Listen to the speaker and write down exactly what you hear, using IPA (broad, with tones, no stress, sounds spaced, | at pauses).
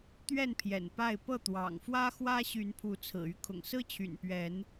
t̪ ɥ ɛ˥˨ n pʰ j ɛ̰˨˩ n p a˥˨ ɪ̯ p ɤ˥˨ t̪ w ɑ̰˨˩ ŋ f w ä˦ x w ä˦ ɕ y˨˦ n pʰ u˨˦ t͡sʰ ɹ̩˨˩ y˦ kʰ ʊ̰˨˩ ŋ s ɹ̩˦ t͡ɕʰ y̰˨˩ n p ɥ ɛ˨˦ n